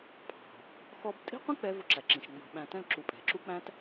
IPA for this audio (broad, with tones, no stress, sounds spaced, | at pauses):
pʰ ɑ̤˨ | x ɔ˦ b tʼ i̤˦ qʷ ĩ˦ k͡p ɛ˧ v ʊ˦˨ ǁ æ˨ ǁ ĩ˨ ʃ ŋ͡m ɑ̤˧ ɓ æ̃˧ t ɛ̃˦ l ǁ u˨ pʼ ɛ̤˨ ǁ u˦ k͡p æ̃˦ t